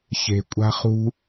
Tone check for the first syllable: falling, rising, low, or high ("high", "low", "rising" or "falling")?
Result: low